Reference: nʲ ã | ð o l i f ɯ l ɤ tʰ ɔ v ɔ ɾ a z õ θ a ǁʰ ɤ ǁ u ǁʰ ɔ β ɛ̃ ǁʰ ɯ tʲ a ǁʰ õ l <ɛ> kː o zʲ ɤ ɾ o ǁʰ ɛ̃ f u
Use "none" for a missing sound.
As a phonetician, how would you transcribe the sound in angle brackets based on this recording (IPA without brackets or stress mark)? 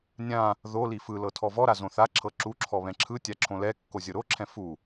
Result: ɛ